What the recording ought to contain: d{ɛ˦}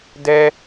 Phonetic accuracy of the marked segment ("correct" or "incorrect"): correct